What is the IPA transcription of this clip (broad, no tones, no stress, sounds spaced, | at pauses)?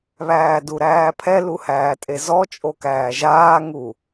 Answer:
β æː d u ɾ æː pʰ ɛ l u h æː tʼ e z ɔ t͡ʃʼ o k æː ʒ aː ŋ u